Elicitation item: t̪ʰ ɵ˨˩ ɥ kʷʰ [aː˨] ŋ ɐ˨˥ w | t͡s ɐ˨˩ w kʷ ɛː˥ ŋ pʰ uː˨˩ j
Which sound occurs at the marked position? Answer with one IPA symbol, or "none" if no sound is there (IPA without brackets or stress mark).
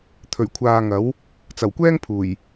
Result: aː˨